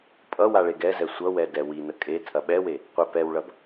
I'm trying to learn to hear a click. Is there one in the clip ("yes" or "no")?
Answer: no